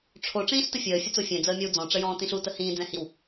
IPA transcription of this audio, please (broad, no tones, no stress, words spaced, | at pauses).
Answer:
ʈ͡ʂʰo ʈ͡ʂĩːɬtəfʲəː fʲət͡sofʲɛ̃ d͡zəːmʲɔwd͡zɔ̃ ʈ͡ʂəjɔ̃ːtĩɬu təhĩː d͡zɛ̃hiw